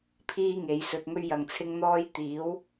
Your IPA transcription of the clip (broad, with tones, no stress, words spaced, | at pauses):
pʰiː˥ŋe˨˥jsɵ˧t̚ŋɵ˥ɥ jɐ˨ŋt͡sʰɪ˥ŋn̪ɔː˥j t̪iː˨˥w